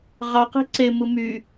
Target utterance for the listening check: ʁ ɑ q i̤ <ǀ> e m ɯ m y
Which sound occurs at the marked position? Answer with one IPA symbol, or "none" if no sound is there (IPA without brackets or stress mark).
ǀ